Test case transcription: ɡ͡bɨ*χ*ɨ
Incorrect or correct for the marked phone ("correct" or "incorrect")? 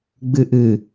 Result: incorrect